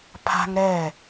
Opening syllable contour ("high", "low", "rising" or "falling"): high